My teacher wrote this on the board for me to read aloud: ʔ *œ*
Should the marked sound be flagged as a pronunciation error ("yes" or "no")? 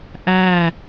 yes